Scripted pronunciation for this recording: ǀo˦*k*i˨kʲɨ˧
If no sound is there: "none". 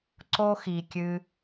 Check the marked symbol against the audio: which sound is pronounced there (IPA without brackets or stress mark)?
x